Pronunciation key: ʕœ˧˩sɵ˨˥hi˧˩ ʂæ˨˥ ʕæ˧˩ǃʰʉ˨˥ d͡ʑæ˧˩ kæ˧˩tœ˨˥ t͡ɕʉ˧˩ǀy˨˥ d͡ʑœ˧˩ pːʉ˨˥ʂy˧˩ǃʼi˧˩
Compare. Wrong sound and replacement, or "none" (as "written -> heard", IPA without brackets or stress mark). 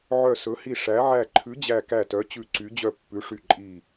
none